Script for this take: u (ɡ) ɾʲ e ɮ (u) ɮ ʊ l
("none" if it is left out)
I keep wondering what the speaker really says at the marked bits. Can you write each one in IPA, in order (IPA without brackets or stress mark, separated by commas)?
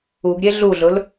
ɡ, u